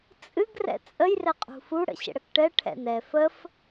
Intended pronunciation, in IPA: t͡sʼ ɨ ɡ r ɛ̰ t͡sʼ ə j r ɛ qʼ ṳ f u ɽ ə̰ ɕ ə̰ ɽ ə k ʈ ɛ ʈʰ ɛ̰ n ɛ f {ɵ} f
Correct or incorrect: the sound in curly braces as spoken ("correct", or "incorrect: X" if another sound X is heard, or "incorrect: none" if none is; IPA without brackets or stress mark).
incorrect: ə